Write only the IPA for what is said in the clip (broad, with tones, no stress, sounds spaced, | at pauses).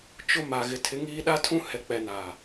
t͡ʃ ʊ˦ m a˨ ɣ ɪ˨ tʰ ɪ˨˦ ŋ iː˦ ɗ a˦ tʰ ũ˦ h ɛ˨ k͡p ɛ˨ n a˨